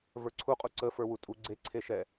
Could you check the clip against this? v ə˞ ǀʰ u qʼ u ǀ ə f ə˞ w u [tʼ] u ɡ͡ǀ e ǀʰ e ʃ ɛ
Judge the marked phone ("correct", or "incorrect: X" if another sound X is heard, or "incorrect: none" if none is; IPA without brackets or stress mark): correct